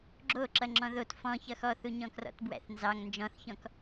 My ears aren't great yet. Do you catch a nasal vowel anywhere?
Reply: yes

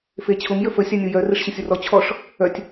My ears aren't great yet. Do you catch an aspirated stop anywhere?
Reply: yes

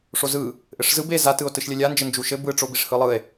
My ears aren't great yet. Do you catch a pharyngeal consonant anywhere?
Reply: no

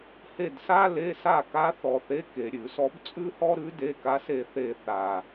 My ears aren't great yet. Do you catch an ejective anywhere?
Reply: yes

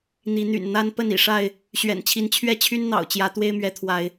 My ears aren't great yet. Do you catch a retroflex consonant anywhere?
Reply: yes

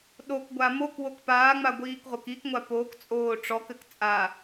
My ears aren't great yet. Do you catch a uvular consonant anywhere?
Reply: yes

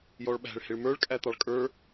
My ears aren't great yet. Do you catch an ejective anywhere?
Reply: yes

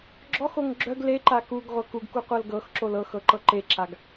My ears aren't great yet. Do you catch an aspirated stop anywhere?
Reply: no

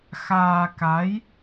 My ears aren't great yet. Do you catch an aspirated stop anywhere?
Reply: no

